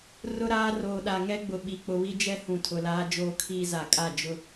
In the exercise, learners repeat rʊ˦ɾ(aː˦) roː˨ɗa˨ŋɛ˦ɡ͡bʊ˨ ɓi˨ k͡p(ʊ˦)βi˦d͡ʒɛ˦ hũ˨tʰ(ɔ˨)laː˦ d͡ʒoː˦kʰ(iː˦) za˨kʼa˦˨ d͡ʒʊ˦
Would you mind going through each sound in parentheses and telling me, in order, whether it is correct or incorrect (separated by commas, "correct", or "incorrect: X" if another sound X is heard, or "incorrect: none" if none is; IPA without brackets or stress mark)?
correct, incorrect: ʊ˨, incorrect: ʊ˨, correct